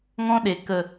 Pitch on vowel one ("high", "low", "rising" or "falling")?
high